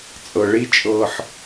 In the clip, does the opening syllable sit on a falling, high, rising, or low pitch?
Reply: low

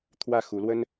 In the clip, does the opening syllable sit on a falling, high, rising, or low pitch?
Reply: falling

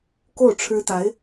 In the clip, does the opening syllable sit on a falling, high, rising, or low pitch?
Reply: falling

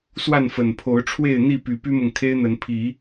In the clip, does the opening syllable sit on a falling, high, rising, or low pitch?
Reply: falling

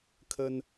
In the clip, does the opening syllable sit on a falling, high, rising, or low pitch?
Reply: high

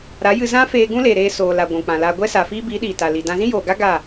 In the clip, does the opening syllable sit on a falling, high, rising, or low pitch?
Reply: rising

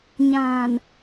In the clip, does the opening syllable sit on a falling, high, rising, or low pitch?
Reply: low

